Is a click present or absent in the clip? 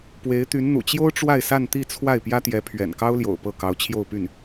absent